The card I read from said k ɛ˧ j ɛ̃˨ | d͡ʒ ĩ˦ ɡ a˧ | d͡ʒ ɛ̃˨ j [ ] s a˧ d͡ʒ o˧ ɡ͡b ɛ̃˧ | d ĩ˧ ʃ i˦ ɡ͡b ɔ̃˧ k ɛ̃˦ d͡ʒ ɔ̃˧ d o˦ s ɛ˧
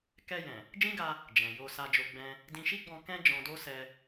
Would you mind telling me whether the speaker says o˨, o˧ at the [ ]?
o˧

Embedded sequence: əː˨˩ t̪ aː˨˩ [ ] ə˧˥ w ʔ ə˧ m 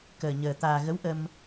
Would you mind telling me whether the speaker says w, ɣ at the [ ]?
ɣ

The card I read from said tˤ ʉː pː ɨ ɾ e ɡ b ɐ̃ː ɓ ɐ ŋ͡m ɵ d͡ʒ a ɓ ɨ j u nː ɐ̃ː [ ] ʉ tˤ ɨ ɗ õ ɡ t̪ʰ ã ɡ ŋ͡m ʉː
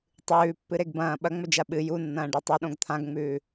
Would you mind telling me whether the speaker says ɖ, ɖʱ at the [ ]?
ɖ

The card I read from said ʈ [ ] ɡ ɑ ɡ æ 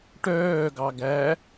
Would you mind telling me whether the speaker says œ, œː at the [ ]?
œː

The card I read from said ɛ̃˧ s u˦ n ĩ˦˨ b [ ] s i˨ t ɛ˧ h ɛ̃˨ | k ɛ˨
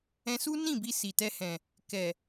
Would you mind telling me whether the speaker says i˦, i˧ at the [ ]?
i˧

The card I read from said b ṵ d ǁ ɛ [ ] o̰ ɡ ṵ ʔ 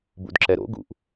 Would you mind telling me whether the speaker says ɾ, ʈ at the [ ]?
ɾ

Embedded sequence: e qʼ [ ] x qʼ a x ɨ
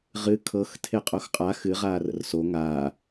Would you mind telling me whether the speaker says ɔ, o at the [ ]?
o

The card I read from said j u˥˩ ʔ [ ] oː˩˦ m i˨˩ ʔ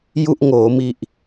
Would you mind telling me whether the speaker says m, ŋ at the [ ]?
ŋ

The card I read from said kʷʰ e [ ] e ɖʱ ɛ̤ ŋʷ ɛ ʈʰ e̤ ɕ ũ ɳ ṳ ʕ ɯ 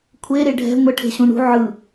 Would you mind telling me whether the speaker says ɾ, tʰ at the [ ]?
ɾ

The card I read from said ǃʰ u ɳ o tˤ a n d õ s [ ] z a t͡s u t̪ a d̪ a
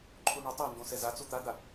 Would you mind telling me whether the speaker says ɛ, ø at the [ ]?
ɛ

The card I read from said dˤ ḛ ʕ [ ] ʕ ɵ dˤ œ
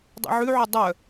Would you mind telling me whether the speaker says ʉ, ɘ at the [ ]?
ʉ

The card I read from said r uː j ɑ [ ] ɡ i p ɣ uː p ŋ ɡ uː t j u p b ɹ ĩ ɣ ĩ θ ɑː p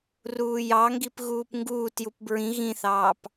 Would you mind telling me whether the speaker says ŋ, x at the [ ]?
ŋ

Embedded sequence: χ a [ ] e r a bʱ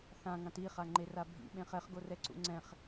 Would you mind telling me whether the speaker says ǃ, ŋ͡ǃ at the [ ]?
ŋ͡ǃ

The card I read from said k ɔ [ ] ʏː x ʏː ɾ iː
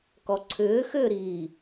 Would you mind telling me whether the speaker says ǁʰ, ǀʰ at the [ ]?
ǀʰ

